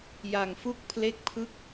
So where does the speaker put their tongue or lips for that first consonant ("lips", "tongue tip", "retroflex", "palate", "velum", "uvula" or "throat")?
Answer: palate